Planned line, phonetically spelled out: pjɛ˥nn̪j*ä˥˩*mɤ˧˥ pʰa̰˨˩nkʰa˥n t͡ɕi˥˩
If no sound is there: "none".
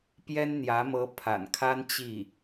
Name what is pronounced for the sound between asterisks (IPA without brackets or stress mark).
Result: ä˧˥